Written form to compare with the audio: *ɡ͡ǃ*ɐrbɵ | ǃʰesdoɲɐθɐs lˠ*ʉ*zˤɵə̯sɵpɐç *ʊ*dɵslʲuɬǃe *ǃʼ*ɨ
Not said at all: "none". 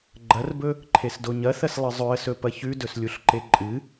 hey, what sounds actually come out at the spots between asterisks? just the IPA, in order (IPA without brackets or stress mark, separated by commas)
ɡ͡ǃ, ɨ, ʉ, ǃʼ